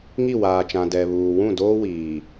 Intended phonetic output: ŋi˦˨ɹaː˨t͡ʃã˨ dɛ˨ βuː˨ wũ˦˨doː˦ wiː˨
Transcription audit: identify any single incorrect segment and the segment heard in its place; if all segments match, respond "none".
ɹ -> w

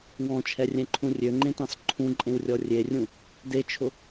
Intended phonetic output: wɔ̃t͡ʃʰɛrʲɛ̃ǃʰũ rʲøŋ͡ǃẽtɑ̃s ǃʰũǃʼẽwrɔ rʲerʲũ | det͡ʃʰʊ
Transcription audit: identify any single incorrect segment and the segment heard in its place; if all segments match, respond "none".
r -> rʲ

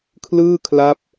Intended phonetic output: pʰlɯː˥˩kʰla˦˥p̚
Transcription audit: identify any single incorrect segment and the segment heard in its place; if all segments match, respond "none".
pʰ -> kʰ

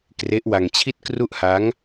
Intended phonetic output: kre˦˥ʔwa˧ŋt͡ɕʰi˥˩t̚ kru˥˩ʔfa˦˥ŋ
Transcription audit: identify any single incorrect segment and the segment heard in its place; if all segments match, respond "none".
f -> h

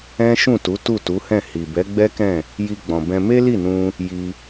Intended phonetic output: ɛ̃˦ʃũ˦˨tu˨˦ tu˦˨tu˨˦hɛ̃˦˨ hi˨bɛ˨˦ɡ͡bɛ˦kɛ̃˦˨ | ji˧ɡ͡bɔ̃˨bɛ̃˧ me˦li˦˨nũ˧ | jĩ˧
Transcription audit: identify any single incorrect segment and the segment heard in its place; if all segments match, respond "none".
ĩ˧ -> i˧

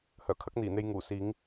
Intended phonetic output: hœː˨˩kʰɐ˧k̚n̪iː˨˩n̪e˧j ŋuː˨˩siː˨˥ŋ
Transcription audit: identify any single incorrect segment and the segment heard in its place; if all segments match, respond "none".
ɐ˧ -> ɐ˥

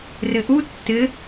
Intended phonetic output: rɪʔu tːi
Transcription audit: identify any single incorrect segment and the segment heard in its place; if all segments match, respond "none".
i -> ɪ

